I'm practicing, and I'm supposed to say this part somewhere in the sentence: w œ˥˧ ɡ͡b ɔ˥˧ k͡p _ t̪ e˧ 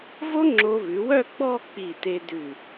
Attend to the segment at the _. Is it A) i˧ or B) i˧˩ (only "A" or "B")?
B